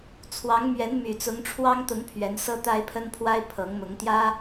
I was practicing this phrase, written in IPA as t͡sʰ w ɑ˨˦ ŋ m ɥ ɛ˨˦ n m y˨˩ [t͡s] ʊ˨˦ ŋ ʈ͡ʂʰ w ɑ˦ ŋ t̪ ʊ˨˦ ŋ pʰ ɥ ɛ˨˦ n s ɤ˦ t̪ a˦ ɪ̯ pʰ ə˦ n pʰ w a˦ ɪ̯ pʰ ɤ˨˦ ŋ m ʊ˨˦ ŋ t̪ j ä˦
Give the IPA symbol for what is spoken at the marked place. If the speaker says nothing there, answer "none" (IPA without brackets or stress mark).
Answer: t͡s